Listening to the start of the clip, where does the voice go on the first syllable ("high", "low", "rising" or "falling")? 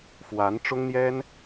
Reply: rising